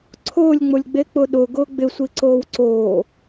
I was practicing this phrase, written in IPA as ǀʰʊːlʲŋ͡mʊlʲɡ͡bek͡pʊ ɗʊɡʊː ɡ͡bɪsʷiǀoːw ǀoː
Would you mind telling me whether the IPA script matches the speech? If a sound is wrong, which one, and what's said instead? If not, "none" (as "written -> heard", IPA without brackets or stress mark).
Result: none